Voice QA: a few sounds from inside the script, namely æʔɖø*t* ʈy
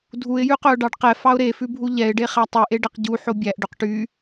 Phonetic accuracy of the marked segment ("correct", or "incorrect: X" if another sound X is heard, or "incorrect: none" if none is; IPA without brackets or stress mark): incorrect: q